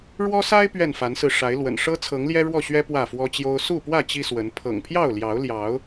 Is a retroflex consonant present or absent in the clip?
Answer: present